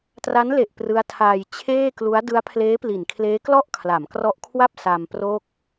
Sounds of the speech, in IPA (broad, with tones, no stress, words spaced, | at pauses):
tra˦˥nle˨˩ʔ prɯ˦˥a̯tʰaː˧j t͡ɕʰeː˥˩klu˦˥a̯ dɯ˦˥a̯pʰleː˦˥pli˩˦nkʰleː˦˥ klɔ˥˩ʔkʰla˩˦mkrɔ˦˥ʔkʰwa˥˩p̚ sa˧mpro˥˩k̚